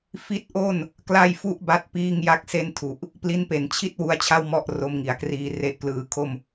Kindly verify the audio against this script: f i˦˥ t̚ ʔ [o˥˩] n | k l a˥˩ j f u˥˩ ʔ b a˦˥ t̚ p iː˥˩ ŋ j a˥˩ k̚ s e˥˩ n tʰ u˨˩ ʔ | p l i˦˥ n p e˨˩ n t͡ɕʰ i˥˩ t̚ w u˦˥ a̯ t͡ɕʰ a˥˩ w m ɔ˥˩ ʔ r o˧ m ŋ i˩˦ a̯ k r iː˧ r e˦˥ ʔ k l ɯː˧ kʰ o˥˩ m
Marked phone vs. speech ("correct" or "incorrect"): correct